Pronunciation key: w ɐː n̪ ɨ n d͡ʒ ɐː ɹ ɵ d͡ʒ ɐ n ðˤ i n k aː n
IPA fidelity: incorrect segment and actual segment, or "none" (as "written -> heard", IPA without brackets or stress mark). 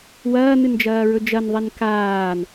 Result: none